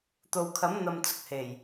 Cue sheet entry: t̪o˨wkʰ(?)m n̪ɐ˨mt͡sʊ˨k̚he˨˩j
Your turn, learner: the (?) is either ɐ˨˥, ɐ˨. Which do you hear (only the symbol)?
ɐ˨˥